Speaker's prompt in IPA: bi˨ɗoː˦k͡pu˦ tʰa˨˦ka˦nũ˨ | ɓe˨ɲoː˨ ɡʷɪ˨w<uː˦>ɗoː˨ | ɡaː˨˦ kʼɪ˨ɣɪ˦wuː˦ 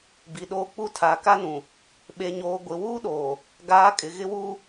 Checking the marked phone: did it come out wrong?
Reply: no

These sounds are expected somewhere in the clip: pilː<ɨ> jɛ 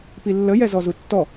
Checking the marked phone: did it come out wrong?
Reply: yes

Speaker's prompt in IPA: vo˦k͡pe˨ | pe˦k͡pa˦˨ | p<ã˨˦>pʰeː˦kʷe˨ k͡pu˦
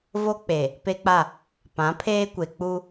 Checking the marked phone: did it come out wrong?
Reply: no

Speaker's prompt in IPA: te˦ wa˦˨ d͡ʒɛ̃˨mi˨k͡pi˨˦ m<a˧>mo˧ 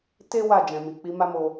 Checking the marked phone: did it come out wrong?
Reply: yes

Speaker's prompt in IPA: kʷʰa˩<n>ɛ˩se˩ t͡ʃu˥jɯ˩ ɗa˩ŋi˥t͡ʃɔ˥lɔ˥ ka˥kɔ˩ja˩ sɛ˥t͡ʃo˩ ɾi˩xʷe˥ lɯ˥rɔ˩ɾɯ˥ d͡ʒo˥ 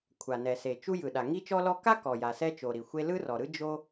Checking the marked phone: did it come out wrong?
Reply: no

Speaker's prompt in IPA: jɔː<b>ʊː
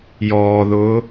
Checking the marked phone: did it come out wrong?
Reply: yes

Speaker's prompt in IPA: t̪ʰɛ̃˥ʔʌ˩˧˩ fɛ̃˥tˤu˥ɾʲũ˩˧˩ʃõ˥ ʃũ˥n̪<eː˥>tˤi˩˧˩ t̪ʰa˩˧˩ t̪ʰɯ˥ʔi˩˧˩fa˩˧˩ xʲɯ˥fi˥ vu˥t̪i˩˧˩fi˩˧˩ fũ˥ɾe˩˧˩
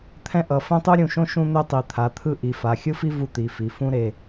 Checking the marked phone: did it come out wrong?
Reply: yes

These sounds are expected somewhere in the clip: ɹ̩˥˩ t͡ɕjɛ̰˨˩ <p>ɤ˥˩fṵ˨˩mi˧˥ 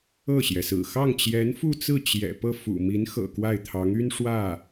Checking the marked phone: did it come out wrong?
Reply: no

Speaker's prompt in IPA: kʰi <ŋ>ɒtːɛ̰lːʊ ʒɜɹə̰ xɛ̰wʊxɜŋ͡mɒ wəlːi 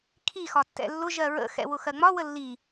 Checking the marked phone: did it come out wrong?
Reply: yes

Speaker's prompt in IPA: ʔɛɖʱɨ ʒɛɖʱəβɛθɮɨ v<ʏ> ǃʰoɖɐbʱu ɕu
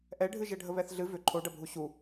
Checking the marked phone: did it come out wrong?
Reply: no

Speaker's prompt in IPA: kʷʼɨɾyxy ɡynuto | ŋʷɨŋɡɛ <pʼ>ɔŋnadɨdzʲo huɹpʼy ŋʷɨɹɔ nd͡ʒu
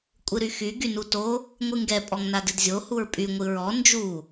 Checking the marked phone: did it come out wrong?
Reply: no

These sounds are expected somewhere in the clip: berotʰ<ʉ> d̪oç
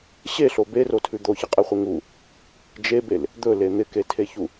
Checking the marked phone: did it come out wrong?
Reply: no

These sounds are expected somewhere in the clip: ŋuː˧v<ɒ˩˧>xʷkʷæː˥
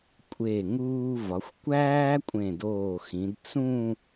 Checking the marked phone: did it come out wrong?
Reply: no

